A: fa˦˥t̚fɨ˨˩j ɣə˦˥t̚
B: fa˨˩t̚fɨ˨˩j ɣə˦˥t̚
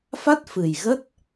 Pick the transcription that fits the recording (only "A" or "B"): A